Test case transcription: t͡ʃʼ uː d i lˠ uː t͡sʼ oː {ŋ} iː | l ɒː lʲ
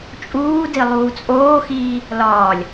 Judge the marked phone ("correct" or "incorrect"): incorrect